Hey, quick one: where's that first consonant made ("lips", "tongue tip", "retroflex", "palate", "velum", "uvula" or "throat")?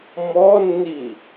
lips